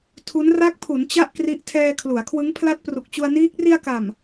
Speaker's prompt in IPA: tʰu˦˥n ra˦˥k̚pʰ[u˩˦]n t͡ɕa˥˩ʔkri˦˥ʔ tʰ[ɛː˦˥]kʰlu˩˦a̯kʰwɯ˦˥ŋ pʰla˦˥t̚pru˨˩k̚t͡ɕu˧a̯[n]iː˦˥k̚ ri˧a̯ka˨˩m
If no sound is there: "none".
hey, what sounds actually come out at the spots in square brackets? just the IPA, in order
u˩˦, ɛː˧, n

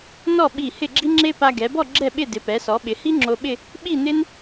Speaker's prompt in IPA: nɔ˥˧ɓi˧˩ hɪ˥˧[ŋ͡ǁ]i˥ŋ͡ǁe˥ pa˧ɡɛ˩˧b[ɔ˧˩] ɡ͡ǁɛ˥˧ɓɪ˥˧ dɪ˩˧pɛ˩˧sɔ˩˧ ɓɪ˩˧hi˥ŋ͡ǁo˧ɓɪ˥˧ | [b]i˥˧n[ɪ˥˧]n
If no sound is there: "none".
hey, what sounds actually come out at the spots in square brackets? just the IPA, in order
ɡ͡ǁ, ɔ˥˧, ɓ, ɪ˥

